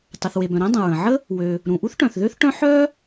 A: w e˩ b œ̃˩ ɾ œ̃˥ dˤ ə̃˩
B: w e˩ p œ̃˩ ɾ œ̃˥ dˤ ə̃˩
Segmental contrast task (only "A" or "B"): A